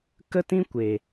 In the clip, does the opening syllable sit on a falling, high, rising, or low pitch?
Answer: high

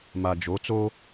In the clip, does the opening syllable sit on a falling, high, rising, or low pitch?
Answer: low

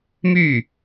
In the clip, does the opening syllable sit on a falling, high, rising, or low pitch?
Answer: falling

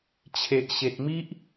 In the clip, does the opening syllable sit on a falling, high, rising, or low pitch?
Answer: low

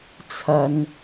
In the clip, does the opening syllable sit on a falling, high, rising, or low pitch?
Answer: low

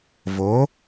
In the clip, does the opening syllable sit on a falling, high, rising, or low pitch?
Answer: rising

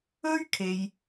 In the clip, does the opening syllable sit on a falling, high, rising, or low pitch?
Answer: high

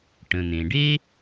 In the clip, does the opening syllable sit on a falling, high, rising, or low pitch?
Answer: low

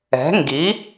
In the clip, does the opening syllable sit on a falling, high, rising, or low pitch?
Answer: rising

